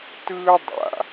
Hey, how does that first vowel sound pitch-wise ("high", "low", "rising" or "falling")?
high